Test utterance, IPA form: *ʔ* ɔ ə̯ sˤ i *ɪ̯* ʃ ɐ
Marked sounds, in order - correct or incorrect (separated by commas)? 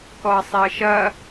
incorrect, incorrect